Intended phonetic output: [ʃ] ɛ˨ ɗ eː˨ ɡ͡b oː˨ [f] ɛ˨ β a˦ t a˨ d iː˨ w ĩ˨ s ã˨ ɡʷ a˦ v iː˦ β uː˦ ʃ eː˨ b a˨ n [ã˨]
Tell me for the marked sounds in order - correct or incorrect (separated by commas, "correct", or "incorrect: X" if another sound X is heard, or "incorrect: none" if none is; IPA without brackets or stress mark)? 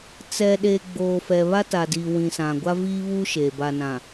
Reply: incorrect: t͡s, correct, correct